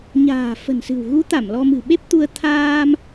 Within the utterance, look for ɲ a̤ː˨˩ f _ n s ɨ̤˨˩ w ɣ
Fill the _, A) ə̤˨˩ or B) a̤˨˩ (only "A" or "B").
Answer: A